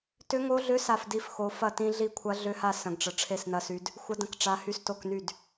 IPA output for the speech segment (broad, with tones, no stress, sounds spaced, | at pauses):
t ʏ˦˥ ŋ o˦˥ ɮ ʏ˦˥ s a˥˧ f d i˥˧ f x o˦˥ f ɐ˥˧ t ĩ˦˥ ɮ i˥˧ kʷʰ ɐ˦˥ ɮ ʏ˦˥ h a˥˧ s ə̃˦˥ ɡ ʈ͡ʂ ə˦˥ ʈ͡ʂʰ e˦˥ s n ɐ˦˥ s y˦˥ d | xʷ ə˦˥ d ə̃˦˥ k ʈ͡ʂ a˦˥ h y˦˥ s t o˥˧ k n y˥˧ d